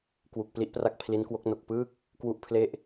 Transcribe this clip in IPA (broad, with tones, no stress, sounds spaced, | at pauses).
k w u˨˩ k̚ p l i˥˩ ʔ p r a˥˩ k̚ pʰ l i˦˥ n k w o˦˥ k̚ n o˨˩ k̚ p ɯː˥˩ k̚ | k w u˦˥ ʔ pʰ l e˥˩ ʔ